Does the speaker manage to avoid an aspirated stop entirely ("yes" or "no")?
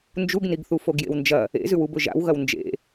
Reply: yes